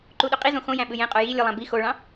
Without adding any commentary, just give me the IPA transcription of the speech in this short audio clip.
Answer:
ǃ u ɗ ø qʼ i z õ x õ j æ̃ ɓ ɯ j ẽ qʼ o j i lʲ ɯ lˠ æ̃ b i x o ɭ ɑ̃

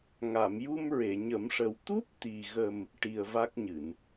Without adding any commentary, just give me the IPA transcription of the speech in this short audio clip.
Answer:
ŋ a˨˩˨ m j u˧ m ɹ e˨˩˨ ɲ ə˨˩˦ m ʂ ə˨˩ w t̪ u˦˥ p̚ t̪ i˨˩ ɣ ə˨˩ m | ʈ i˨˩ ə̯ v a˦˥ k̚ ɲ ɨ˨˩˨ n

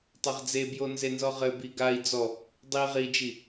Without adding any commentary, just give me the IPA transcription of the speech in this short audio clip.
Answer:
tˤ ɘ ʁ d͡z e b j o n z e n z ɔ ʁ ɘ b i ɡ a i̯ d͡z ɔ | dˤ i ʁ i d͡ʒ i

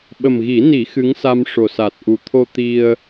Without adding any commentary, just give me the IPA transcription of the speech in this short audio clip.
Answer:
ɓ ə˨˩ m ɣ i˨˩˦ n i˨˩˦ x ɨ˧˥ ŋ s a˧ m ʂ o˨˩ s a˨˩ t̚ ʔ u˨˩ t̪ʰ o˧ t̪ i˧ ə̯

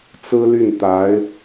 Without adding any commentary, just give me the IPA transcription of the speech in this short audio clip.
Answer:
t͡s ɹ̩˥ l y˥˩ n t̪ a˧˥ ɪ̯

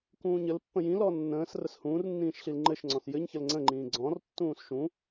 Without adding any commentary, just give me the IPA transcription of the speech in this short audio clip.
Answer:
k ũː ɲ ə l pː ə̃ j ĩ l ɔ nː ə̃ː s r ə s h ũː r nː ĩː ʃ ɬ i l ŋ͡ǃ ɘ ʃ ŋ͡ǀ ɔ̃ s j ɘ ɲ ç ə l ŋ͡ǀ ə̃ ŋ͡ǃ ĩː ɡ͡ǀ ɔ̃ r tː ũː s ʃ ũ

